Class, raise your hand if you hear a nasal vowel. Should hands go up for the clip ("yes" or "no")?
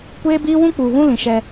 yes